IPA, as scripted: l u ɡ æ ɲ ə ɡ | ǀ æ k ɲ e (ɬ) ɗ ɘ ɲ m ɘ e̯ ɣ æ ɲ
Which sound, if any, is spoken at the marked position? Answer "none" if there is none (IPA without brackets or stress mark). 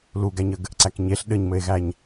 ɬ